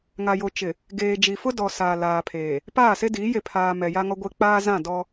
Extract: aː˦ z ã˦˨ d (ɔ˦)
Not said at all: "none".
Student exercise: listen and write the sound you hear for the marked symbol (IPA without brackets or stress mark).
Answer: ɔ˦